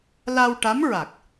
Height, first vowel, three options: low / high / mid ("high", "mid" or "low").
low